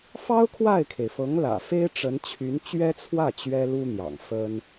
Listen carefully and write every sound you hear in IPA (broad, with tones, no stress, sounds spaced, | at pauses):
f ɑ˥ ʊ̯ kʰ w a˥˩ ɪ̯ kʰ e˩ ɪ̯ f ɤ˧˥ ŋ l ä̰˨˩ f e˥ ɪ̯ ʈ͡ʂ ə˧˥ n t͡ɕʰ y˧˥ n t͡ɕ ɥ ɛ˥ t͡sʰ w ä˥˩ t͡ɕ ɥ ɛ˥ l u˥ n̪ j ɑ̰˨˩ ŋ f ə˥ n